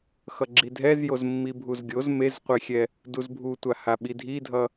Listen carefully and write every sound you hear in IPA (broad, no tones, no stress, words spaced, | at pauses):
xʌɡ͡ǁidʱɛz jozmːibʱuzɡʲoz mezqʷexʲɛ | duzbʱutʷa haɓidʱidʱʌ